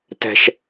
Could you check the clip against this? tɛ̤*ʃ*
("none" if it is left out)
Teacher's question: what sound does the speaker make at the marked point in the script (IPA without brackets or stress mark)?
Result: ʃ